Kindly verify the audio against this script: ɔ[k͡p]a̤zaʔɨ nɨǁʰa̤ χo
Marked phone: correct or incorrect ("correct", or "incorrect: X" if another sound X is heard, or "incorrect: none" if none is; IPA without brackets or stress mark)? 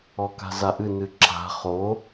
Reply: incorrect: k